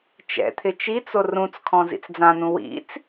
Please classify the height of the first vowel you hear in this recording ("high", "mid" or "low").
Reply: mid